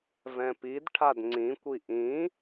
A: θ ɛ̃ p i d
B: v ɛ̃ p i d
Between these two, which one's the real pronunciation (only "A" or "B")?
B